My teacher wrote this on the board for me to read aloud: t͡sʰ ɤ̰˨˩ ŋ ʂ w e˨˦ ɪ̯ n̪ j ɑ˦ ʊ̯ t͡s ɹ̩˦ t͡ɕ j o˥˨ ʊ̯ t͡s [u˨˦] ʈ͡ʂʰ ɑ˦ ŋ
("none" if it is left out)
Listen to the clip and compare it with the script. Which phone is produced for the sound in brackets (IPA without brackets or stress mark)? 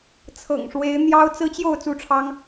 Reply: u˥˨